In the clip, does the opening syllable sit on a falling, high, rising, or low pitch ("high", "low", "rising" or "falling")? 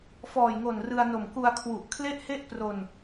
low